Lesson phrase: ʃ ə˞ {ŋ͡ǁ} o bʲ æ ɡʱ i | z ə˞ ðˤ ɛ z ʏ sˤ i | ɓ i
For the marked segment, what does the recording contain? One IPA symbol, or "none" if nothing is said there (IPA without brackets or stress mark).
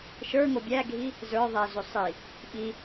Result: ŋ